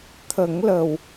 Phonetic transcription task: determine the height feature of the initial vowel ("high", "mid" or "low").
mid